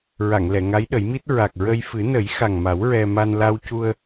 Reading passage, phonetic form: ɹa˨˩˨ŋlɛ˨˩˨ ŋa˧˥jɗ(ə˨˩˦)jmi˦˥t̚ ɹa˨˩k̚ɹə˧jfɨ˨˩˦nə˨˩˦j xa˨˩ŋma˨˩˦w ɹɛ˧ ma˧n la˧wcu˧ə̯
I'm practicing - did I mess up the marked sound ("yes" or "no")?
no